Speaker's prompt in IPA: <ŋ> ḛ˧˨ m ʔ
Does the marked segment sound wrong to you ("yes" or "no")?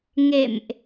no